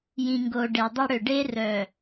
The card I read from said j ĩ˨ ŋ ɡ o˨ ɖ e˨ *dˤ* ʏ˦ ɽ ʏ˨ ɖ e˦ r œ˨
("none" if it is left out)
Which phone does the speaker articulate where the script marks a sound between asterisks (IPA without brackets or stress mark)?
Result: dˤ